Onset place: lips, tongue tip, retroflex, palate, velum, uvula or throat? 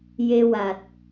palate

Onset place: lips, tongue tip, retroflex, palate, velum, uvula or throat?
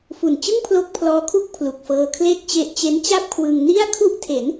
lips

